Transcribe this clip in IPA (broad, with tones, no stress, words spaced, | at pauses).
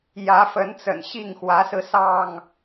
jä˨˦fə˨˦nt͡sə̰˨˩n ɕi˥˨ŋ xwä˨˦sɹ̩˧sɑ˥˨ŋ